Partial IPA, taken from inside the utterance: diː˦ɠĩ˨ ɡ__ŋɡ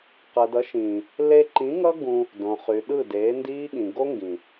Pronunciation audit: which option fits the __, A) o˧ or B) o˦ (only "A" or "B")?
B